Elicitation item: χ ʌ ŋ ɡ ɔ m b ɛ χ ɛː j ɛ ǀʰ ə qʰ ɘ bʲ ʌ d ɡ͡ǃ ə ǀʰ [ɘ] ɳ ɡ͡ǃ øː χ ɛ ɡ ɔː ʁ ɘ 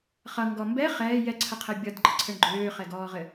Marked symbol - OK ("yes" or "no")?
yes